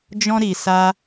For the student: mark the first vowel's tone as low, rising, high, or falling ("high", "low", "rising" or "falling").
high